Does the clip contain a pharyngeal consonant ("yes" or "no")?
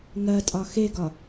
no